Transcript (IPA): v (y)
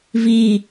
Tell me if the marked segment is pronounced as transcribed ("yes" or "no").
no